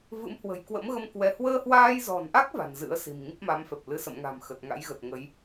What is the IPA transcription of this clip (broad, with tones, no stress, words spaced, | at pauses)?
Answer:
vɨ̰˧˥mhwə̤˨˩j kwə̰˧˥mɣə˧mkwɛ˨˦ hwəː˧hwaː˧jzɔ̤˨˩nʔa˦˥k̚ va̤˨˩nzɨ̰˧˥ə̯si̤˨˩m ŋi˦˥p̚ma˨˦mfɛ˨˩p̚lɨ˧ sə̰˧˨mŋa̤˨˩m xə˨˩t̚ŋa̰˧˥jɣə˨˩t̚ ŋə˨˦j